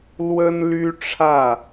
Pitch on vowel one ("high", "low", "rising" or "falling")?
high